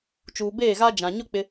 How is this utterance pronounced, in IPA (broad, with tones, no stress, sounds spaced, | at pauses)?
t͡ʃ uː˨ b eː˦˨ ɣ a˦ d͡ʒ ã˨ ɲ ʊ˦ k͡p ɪ˦